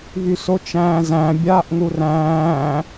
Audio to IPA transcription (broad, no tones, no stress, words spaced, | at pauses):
vysot͡ʃæ̃ːzæ̃ bʲaːʔŋuræ̃ː